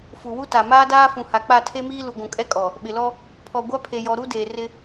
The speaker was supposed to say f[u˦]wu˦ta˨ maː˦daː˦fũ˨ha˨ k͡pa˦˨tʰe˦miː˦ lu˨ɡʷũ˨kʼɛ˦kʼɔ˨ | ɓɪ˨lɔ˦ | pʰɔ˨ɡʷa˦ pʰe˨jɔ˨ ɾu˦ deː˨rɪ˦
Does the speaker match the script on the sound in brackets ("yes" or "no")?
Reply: no